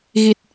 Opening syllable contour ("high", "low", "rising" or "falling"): low